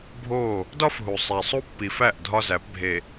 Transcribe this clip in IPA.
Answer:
bʱ o˦˨ | d ɒ˦ f ɦ u˨ sˤ æ˨ sˤ u˦ pː i˨ f æ˦˨ ʔ dʱ ɒ˦ z æ˨˦ p bʱ e˨

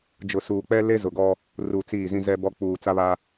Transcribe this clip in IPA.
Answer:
d͡ʒ ʊ˨ s uː˨ k͡p ɛ˦ l e˦ z ʊ˨ ɡ ɔ˦ | r u˨ t͡s iː˦˨ z ĩ˦ z ɛ˦ b ɔ˦ k͡p uː˨ t͡s a˦ β a˦

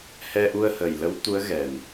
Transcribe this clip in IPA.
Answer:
h ɛ˧ ʔ u˧ ə̯ h ə˨˩ j l ə˧˥ w t̪ u˧˥ ə̯ ɣ ɛ˨˩ n

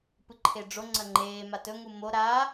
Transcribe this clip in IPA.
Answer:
p ɨ ǃʰ e ɖ͡ʐ o ŋ͡ǀ ɐ ŋ͡ǃ eː m a t ɵ ŋ u m o ɾ aː

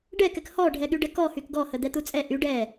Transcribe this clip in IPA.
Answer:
ɖ ɛ k ɛ k h ɔ ɖʱ ɛ ɠ y ɖ ɛ k ɔ h y k ɡ ɔ h ə d̪ ɛ t̪ u t͡sʼ ɛ ʔ y ɖ ɛ

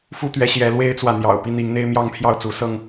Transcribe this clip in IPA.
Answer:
f u˦ t̪ ɥ ɛ˨˦ ɕ j ɛ˨˦ l w e˦ ɪ̯ t͡s w ä˨ n̪ j ɑ̰˨˩ ʊ̯ p i˦ n̪ i˨˦ ŋ n̪ e˦ ɪ̯ m j ɑ˥˨ ŋ pʰ j ɑ˥˨ ʊ̯ t͡s u˨˦ s ɤ˥˨ ŋ

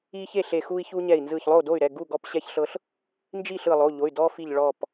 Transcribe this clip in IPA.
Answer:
i˦ ç e˥˨ ɬ e˧˩ x u˦ i̯ ç u˦ ɲ ɛ˧˩ i̯ n z ɯ˧˩ ç lˠ o˥˨ d o˥˨ y̯ ɾ ɛ˩˧˩ ɡ u˥˨ ɡ ɔ˦ p ɕ ɛ˦ ç ɬ ɤ˦ ɬ | n d͡ʒ i˥˨ ɬ ɯ˧˩ lˠ o˩˧˩ ʎ o˩˧˩ y̯ d ɔ˦ f i˧˩ ʎ ɭ ɔ˧˩ p

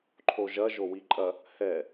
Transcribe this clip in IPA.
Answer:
ǃʰ o ʒ ɐ ʒ o w i ǃʼ ɐ | h ɛ

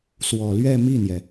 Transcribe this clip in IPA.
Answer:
s w ɔ˨˩ l ɥ ɛ˥˧ m i˥˩ n̪ j ɛ˩

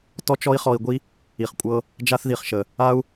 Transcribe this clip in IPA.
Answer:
t ɔ˦ t͡ʃ ɔ˦ i̯ χ ɔ˧ i̯ ɡʷ i˦ | i˨ χ kʷʼ ɤ˧ | d͡ʒ a˦ θ ð i˨ χ ʃ ə˨ | a˦ u̯

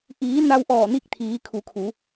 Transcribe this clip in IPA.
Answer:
ʔ iː˩˧ n a˧ w ʔ ɔː˧˩ n i˧˥ k̚ t̪ʰ iː˩˧ kʰ u˩˧ kʰ u˩˧

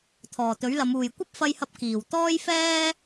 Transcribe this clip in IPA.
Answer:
t̪ʰ ɔː˨˩ t̪ ɵ˨˥ ɥ l ɐ˨˧ m uː˨ j kʷ ɐ˥ p̚ f ɐ˧ j h ɐ˧ p̚ k iː˨˩ w t̪ ɔː˥ j f ɛː˥

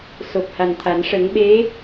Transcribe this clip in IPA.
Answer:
s o˨˩ p̚ h a˨˩ n t̪ʰ a˨˩˦ n ʂ ə˨˩˦ ŋ ɓ e˧˥

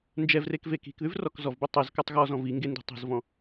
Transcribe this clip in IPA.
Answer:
n d͡ʒ ɛ v r e k v e k i̤ k ð ʉ v r ɔ k z ɔ v b u tˤ e z k ə˞ tˤ ɣ ɔ z ɔ̃ v i ŋ ɡ e n d i̤ tˤ i̤ z v ɔ̃

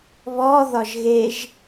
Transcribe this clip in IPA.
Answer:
β ɔ ð ɒ ʒ ɣ e ʒ

